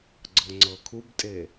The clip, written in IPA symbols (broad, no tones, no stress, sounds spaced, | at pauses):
ɡ͡ǀ ɤ ŋ͡ǀ ɤ kʰ u b tʼ e